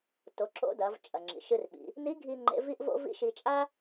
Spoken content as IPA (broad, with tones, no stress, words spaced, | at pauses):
to˩˧ǁo̰˧˥dɐ˩˧vt͡ʃʼɐ˩ ŋ͡ǁḭ˩ʃɨ˧rɓḭ˩˧ | ni˧˥ɡʱi˧ ŋ͡ǃḛ˧˥vi˥ʔ vo̰˥vḭ˥ʃi˧ t͡ʃʼa˥